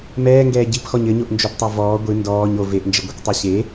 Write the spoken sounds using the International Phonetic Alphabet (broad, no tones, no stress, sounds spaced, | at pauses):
m ɛː ŋ ɡ ɛː ɟ i p x ɔ ɲ ɘ ɲ o ʔ n d͡ʒ o p tˤ a v ɔː ɡʷ ɨ n d ɔː ɲ o v e ʔ n d͡ʒ ɘ ɡʷ e kʷ tˤ o ɕ e